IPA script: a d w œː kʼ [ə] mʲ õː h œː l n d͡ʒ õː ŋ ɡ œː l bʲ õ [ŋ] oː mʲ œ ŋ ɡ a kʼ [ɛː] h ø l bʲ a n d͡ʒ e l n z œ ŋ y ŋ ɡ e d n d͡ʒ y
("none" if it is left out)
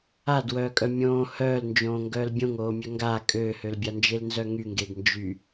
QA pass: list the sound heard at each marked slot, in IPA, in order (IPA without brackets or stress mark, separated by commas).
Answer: œ, ŋ, øː